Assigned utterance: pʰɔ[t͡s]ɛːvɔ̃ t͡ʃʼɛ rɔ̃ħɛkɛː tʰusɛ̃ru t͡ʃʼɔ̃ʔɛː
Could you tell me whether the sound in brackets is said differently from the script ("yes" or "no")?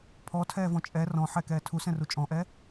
yes